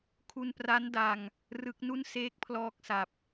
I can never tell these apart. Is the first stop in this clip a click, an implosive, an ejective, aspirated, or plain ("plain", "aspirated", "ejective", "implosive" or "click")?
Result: aspirated